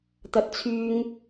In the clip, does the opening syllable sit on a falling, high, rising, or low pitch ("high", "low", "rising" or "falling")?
high